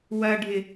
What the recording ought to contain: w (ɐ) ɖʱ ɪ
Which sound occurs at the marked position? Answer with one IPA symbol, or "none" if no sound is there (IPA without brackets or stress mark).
ɐ